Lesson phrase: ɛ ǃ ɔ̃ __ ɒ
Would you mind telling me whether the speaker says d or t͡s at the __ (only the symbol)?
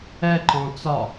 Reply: t͡s